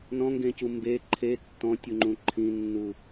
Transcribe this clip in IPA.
n ɔ̃ ŋ ɡ ẽ c u m b e ǃʰ e tː ɔ̃ tʲ u ŋ͡ǃ ũ ǃʰ ĩ nː u

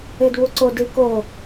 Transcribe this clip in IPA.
e d β u ǀ o d i k o

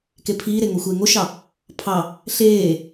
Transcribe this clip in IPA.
k e pʰ iː ɾ e ŋ o xʷ eː ŋ o ʃ ɑ | pʰ ɑ | ɬ eː

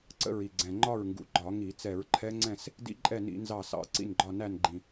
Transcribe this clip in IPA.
ǀ ə̰˦˥ ɹ i˨˩ ɡ͡ǀ ɛ̃˨˩ ŋ͡ǃ ɒ˥˨ ɹ ŋ ɡ ṵ˨˩ ɡ͡ǃ ɒ˧˩˧ ŋ i˧˩˧ t͡s ɛ˧˩˧ ɹ ǃʰ ɛ˦˥ ŋ͡ǀ ɛ̃˥˨ s | d ḭ˦˥ ǃʼ ɛ˥˨ n ḭ˧˩˧ n z ɑ˥˨ s ɑ̰˧˩˧ ǀ ḭ˥˨ n ɡ͡ǃ ɒ˥˨ n æ˥˨ n ɡ͡ǃ ĩ˨˩

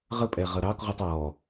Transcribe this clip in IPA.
ʁ ə pʼ ɛ ʁ ʌ ɾ ɑ k ʁ u tˤ ɔ

